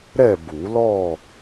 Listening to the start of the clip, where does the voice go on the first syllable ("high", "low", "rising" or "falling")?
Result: falling